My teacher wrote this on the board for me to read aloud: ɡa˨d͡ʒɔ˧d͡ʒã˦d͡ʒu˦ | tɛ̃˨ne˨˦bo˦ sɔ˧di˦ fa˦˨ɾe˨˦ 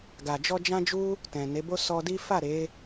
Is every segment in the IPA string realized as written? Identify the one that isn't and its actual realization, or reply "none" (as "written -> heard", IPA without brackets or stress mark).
none